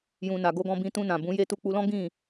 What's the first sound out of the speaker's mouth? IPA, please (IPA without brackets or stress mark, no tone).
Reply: j